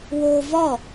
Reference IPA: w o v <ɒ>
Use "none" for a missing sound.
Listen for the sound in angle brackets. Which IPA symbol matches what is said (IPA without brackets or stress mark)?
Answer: ɒ